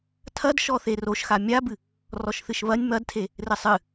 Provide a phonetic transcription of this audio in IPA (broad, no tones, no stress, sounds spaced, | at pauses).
tʰ ɐ d ʃ ɔ θ e r o ʃ x a mʲ a b ɨ | r ɔ ʃ θ ɨ ʃ β ɐ nʲ m ɐ d tʰ e | r ɘ sˤ ɨ